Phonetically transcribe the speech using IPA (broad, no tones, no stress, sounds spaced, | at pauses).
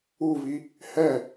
u v i | h ɛ